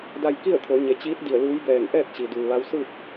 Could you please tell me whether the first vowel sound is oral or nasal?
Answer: oral